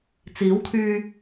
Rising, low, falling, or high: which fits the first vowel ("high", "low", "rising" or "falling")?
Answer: rising